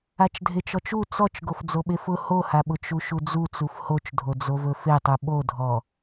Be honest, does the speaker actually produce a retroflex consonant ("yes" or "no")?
no